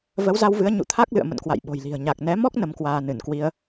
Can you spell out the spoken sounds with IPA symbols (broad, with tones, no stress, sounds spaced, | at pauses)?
v ə˨˦ w z a˧ w v ɨ˨˦ ə̯ ɲ ṵ˧˨ t̪ʰ a˦˥ k̚ l ɨ̰˧˨ ə̯ m ə̰˧˨ n k w a̰˧˨ j ɓ o̤˨˩ j l i̤˨˩ ə̯ ɲ a˨˩ k̚ n ɛ˨˦ m ɔ˦˥ k̚ n ə˨˦ m k w aː˧ n ɨ˧˩ n k w i˧ ə̯